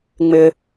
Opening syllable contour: high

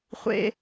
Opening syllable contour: high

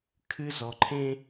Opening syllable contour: high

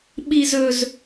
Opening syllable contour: high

